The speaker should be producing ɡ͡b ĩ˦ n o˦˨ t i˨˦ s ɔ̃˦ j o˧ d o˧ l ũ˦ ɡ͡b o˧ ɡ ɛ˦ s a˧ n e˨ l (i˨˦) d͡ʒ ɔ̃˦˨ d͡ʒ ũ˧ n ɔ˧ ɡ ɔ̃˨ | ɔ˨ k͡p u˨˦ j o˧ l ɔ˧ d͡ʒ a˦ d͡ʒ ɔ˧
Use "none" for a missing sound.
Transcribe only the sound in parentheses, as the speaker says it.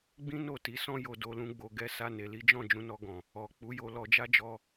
i˨˦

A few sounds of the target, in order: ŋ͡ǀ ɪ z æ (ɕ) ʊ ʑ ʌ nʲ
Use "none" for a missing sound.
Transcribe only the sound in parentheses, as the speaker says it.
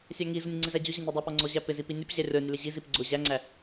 d͡ʑ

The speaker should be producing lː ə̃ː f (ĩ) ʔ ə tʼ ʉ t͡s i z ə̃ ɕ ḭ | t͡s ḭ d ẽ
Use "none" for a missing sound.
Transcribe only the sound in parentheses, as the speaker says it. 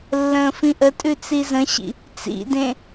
ĩ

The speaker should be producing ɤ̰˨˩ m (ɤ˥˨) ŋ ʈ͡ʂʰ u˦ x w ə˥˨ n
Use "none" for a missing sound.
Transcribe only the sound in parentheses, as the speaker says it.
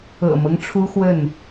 ɤ˦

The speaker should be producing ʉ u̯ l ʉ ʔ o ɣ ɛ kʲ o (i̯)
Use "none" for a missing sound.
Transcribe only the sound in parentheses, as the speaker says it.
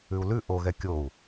u̯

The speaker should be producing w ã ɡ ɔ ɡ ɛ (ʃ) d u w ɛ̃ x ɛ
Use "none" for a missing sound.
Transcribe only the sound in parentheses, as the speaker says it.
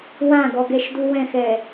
ʃ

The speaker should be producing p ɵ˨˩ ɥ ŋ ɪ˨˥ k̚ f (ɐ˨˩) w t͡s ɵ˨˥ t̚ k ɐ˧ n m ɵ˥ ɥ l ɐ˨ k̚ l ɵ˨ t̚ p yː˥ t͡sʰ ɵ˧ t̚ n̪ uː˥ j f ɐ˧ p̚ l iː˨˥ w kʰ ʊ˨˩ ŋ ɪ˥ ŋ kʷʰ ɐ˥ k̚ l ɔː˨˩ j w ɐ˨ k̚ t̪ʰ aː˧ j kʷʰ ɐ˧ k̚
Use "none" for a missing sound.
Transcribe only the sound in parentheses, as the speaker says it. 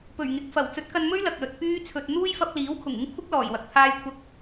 ɐ˨˩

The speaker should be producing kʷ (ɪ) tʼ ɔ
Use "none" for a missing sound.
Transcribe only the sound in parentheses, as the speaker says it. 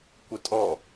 ɪ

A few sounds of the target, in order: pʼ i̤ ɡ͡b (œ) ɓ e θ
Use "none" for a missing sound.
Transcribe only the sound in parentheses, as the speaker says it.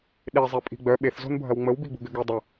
œ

